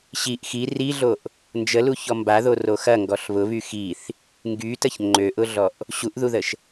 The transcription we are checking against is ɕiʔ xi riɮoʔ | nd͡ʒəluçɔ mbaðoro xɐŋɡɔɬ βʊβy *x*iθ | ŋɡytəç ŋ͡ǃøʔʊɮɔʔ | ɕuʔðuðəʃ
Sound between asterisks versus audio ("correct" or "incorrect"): correct